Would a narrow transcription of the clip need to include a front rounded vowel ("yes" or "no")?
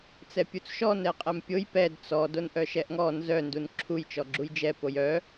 yes